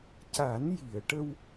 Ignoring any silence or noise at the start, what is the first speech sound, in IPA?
c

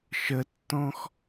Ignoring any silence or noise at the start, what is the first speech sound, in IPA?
ʃ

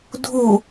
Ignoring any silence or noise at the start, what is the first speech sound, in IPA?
dʱ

